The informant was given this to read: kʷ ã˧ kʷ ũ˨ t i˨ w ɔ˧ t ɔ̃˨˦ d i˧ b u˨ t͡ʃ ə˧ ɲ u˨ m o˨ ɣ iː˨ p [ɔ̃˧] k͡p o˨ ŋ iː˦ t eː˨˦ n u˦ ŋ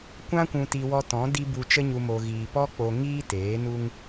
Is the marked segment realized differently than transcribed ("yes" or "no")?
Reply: yes